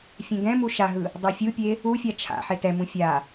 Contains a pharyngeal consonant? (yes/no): yes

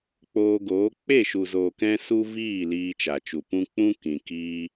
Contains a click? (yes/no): no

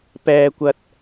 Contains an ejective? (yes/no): no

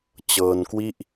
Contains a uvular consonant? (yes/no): no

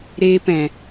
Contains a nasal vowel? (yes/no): yes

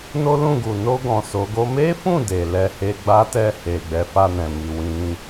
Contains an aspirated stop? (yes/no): no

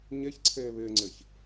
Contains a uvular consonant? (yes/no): no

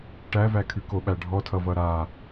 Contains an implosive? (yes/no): yes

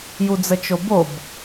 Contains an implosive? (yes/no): no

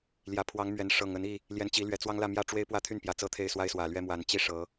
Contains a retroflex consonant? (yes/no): yes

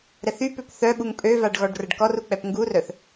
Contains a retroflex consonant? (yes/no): yes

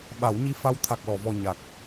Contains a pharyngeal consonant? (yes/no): no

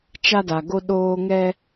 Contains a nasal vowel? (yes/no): no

